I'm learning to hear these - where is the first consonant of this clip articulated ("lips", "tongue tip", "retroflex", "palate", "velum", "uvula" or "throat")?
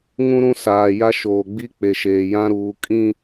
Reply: velum